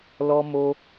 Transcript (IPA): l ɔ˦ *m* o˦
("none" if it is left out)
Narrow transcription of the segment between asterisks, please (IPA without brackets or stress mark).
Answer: m